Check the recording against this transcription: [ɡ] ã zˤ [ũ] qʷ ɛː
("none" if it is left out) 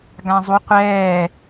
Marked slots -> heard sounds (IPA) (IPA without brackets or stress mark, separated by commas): ɡ, u